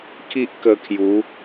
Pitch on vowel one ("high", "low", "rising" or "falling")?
high